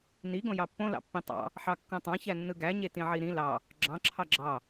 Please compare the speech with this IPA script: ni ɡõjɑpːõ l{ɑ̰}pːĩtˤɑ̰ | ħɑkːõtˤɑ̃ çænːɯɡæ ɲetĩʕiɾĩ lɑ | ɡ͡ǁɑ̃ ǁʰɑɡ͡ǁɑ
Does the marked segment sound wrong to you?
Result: no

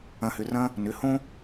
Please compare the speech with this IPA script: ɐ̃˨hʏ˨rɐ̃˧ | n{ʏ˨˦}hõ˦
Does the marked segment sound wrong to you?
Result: no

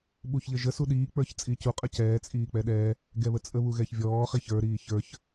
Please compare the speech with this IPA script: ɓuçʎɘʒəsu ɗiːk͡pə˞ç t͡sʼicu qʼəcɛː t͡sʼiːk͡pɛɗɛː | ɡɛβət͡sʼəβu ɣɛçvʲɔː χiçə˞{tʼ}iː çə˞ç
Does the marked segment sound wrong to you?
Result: yes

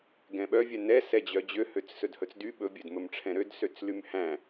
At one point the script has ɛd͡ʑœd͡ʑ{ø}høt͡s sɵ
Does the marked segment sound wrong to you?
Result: no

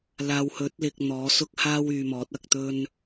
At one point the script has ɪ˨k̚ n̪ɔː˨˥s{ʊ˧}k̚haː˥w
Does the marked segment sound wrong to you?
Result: yes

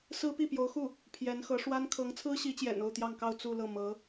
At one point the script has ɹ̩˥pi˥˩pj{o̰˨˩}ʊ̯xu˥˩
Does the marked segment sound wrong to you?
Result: yes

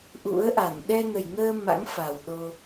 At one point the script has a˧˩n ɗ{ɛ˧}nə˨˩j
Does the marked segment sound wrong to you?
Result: no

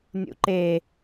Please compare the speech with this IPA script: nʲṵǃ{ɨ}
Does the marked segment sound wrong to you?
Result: yes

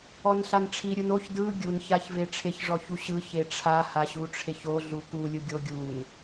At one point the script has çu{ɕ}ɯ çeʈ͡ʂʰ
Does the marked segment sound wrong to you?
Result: no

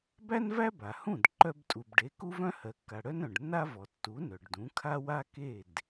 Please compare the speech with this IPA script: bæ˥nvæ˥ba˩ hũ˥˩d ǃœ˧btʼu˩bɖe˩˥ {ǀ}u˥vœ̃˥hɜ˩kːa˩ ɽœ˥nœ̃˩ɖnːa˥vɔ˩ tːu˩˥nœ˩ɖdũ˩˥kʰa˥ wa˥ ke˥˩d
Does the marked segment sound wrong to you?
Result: yes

